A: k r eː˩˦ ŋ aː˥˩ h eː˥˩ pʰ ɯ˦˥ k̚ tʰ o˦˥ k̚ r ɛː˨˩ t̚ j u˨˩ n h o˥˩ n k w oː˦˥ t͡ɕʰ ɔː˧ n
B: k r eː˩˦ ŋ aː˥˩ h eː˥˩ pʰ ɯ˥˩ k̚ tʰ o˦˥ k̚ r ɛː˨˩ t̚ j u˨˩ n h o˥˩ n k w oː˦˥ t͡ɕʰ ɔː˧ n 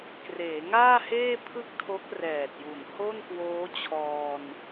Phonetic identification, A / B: B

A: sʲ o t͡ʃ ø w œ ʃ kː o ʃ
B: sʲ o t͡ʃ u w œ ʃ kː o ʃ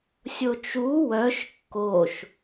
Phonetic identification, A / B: B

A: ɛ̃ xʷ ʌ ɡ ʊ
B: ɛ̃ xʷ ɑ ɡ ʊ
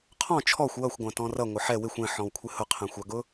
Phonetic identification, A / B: B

